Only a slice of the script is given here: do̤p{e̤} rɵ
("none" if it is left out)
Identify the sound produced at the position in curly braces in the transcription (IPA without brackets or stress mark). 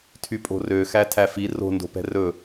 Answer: ɛ̤